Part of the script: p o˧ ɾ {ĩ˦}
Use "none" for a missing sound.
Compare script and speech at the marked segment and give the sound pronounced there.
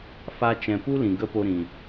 ĩ˨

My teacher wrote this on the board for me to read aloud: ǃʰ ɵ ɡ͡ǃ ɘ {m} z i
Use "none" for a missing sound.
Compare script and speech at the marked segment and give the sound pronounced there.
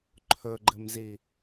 m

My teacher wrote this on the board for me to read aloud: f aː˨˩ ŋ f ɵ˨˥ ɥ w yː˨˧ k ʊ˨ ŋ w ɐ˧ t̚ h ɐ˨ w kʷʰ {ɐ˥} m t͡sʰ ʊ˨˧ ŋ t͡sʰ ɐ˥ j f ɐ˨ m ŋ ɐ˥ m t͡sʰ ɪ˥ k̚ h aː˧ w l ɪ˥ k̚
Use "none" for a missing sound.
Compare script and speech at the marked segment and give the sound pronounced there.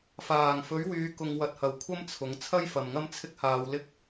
ɐ˥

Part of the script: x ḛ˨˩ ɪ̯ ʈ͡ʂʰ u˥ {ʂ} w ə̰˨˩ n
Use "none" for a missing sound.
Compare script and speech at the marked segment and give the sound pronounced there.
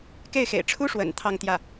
ʂ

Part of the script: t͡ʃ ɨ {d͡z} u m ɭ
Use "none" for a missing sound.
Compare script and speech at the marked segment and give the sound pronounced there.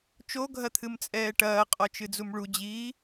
d͡z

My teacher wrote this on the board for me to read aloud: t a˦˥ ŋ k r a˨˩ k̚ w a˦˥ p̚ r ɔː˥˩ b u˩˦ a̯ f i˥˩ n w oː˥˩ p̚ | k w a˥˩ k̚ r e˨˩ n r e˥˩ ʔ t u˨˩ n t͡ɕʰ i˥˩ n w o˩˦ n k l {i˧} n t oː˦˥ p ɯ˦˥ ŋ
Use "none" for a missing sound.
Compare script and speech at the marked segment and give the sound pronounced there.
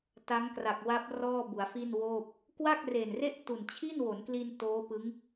i˧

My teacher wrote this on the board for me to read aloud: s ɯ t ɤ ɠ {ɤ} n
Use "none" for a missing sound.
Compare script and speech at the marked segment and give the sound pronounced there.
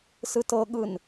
ɯ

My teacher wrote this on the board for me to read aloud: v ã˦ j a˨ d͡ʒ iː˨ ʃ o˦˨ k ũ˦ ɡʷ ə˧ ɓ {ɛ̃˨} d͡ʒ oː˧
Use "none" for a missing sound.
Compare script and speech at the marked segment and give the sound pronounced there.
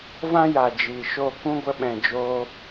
ɛ̃˨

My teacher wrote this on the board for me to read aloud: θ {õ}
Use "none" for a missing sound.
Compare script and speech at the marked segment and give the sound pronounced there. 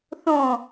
õ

